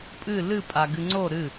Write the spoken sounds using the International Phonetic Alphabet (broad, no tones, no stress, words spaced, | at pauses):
pʼɨ lɨ pʼaɡɨŋ͡ǀo ɾɨ